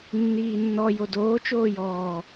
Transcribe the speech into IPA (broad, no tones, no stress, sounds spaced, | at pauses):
nː iː nː ɔ j o d oː t͡ʃ oː j ɔː